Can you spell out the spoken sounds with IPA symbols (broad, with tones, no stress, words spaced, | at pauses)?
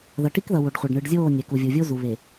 ðʌ˨ʈi˦kðʌ˨ wo˨ɖχʷa˨ɖ ɳɯ˨ɖ zʲoː˦˨nʲɛ˨ku˨ vʲu˨vʲo˦zu˨ βe˨